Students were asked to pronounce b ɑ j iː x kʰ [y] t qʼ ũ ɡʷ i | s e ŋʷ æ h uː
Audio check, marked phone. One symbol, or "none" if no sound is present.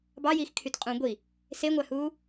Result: y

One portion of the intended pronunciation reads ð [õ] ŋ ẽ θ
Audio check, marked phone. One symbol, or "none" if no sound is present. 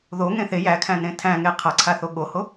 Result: o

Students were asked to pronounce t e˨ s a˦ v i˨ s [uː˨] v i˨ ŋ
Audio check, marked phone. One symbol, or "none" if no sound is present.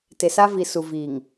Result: u˨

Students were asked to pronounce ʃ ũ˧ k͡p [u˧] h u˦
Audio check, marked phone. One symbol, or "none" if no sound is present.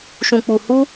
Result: u˧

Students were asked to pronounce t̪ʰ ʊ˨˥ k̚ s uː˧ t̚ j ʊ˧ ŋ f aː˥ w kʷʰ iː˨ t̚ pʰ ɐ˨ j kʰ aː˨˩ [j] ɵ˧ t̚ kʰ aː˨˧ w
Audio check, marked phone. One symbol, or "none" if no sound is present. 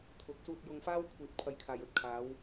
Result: j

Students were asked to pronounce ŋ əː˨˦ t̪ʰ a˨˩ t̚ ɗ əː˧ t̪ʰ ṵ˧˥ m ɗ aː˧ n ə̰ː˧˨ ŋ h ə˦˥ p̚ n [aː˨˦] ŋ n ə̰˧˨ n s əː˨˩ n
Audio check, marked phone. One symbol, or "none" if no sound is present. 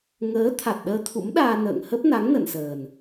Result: a˨˦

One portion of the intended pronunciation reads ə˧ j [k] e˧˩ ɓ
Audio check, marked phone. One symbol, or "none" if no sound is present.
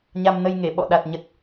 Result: ŋ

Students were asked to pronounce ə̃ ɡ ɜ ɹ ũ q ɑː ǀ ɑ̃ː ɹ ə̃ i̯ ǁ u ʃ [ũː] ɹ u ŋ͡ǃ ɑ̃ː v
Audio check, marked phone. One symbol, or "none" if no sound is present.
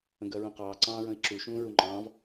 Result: ũː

